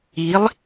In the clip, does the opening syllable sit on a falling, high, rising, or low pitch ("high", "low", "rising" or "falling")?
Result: rising